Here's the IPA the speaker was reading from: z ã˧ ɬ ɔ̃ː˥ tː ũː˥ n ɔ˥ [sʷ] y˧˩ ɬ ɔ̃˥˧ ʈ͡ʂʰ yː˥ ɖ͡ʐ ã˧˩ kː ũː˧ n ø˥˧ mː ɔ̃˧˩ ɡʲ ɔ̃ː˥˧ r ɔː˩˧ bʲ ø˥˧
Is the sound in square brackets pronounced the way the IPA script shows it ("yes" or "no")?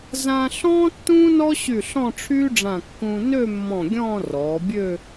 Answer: no